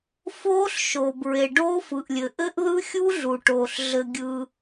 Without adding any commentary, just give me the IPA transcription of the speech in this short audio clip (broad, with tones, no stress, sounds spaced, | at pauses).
f oː˦˥ ɬ ʃ oː˨ b ɹ e˨ ɖ oː˦˥ f ɯ˨ ʔ lʲ ɘ˨ ʔ ɘ˦˥ ʔ ð ɯ˦˥ xʲ u˦˥ ɮ u˨ ʈ oː˨ ɬ ɮ ɘ˨ ɡʲ ɯː˨